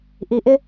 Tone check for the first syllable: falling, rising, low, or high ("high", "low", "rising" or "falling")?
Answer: low